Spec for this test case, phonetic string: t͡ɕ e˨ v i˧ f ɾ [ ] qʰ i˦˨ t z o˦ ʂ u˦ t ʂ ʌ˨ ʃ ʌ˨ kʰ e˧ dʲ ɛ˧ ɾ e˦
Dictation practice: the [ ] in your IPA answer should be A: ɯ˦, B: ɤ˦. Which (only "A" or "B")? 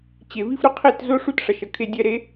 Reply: A